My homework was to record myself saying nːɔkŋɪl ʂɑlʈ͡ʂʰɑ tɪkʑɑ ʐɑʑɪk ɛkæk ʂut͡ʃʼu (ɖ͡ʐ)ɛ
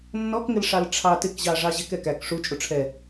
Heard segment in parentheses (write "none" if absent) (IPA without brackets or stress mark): ʈ͡ʂʰ